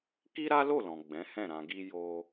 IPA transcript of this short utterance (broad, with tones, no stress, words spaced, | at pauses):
ki˦ɾa˦lo˦˨lɔ̃˨ ɡ͡bɛ̃˨˦hɛ̃˦˨ɾã˧ɡi˦ jo˦